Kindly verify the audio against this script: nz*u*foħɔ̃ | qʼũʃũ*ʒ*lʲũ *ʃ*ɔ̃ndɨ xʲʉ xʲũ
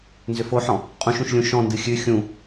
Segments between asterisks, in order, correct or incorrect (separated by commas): incorrect, incorrect, correct